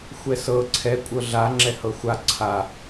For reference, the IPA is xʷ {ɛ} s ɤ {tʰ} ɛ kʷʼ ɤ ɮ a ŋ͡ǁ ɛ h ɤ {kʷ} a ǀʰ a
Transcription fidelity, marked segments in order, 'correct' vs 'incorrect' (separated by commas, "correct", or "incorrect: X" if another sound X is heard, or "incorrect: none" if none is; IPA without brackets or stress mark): correct, incorrect: ǀʰ, incorrect: xʷ